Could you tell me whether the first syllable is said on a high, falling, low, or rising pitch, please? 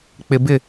high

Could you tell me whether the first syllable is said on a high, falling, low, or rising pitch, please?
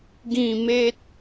falling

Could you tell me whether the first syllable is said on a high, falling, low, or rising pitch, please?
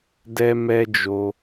high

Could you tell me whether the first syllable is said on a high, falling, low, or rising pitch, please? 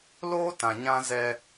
high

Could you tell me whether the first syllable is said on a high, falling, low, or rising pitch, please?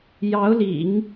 rising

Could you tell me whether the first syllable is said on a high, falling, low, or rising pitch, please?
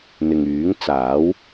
low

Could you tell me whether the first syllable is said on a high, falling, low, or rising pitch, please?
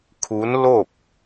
rising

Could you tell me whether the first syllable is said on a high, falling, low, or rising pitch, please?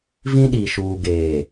high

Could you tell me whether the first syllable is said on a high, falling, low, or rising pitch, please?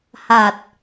low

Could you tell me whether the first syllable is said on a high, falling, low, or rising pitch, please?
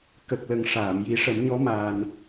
low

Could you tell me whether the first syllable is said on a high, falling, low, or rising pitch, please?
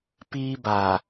high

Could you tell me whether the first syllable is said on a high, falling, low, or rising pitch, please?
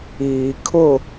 low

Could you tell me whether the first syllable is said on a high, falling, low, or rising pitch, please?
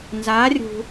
rising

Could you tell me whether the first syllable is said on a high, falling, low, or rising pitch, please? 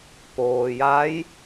low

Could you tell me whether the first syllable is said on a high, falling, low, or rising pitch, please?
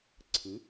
rising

